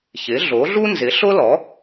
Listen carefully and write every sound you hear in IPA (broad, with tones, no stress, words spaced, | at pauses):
çɪ˩˥ɮo˩˥ɮu˥ nzɪ˩˥ɬʊ˥ lɔ˩˥